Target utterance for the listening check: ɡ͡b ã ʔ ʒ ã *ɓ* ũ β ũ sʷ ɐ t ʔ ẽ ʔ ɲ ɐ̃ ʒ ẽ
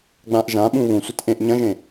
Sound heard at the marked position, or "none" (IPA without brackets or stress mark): ɓ